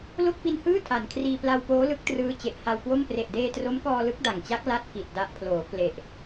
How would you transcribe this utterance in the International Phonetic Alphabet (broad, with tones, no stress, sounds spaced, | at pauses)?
l o˥˩ k̚ p i˧ n h ɯː˥˩ tʰ a˩˦ n kʰ r iː˧ p l a˧ w p oː˦˥ l ɯ˦˥ k̚ t r ɯː˦˥ t͡ɕ e˨˩ ʔ h a˧ w k w o˥˩ m p r e˨˩ ʔ d eː˧ t r o˦˥ m k ɔː˧ l ɯ˦˥ k̚ d a˨˩ ŋ t͡ɕ a˦˥ k̚ l a˥˩ t̚ k i˨˩ t̚ d a˦˥ ʔ pʰ l oː˩˦ k l e˨˩ ʔ